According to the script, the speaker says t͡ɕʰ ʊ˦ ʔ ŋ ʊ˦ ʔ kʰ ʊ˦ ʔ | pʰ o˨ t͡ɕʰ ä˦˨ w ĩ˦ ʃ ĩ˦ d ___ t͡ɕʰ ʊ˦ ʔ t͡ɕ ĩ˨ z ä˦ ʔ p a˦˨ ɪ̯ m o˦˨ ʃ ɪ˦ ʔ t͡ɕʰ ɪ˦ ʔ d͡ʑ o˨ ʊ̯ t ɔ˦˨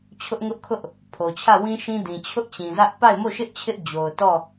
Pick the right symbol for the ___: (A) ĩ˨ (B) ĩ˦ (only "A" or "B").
A